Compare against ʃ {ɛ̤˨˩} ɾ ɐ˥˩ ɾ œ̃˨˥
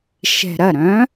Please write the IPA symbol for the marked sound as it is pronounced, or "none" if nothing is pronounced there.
ɛ̤˨˩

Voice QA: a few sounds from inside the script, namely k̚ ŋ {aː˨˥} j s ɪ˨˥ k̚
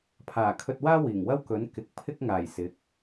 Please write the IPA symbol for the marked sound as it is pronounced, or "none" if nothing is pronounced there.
aː˨˩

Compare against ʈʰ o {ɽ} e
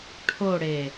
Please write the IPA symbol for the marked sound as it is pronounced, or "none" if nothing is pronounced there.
ɽ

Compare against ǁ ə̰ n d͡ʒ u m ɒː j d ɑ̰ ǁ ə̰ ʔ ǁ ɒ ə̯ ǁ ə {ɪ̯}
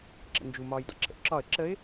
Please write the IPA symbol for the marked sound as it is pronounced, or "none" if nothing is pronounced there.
ɪ̯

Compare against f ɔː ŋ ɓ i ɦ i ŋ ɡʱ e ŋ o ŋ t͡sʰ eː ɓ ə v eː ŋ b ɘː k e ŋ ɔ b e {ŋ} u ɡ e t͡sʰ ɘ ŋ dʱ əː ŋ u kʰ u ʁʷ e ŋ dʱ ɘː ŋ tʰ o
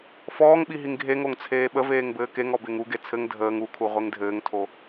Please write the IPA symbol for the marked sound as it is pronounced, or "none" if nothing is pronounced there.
ŋ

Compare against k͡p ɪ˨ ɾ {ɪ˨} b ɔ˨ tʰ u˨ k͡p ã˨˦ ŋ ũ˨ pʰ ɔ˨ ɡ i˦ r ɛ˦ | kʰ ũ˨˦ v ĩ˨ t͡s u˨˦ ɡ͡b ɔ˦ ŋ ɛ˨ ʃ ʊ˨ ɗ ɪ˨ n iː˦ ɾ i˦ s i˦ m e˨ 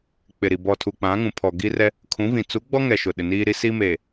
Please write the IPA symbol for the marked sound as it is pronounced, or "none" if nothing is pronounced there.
i˨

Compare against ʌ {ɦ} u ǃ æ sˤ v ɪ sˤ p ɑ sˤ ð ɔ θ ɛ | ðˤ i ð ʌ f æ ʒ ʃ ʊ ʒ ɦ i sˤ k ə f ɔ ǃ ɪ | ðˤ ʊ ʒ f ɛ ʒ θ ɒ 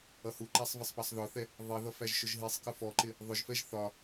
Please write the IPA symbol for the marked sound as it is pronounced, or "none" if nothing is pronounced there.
h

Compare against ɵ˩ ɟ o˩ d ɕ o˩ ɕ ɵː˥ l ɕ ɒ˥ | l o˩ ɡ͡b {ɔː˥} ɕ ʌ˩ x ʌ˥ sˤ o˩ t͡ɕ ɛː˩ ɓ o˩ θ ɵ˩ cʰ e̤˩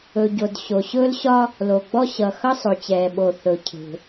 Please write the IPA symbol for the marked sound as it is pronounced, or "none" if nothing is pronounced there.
ɔ˥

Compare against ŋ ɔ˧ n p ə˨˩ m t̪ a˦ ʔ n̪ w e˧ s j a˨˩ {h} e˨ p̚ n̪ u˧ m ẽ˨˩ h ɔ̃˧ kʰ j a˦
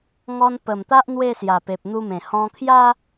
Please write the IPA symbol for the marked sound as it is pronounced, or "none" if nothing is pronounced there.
p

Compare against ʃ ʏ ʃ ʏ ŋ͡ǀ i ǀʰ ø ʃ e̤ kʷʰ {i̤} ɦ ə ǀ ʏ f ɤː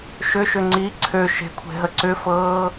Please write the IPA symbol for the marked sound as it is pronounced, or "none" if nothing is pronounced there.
e̤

